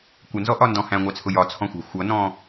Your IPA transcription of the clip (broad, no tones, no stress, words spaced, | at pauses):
kʷənzɔʔɒndɔ̃ hæ̃ŋʷɑt͡sʰʊ jɒt͡sʰɔ̃xʷæ̤ xʷʌnɔ̃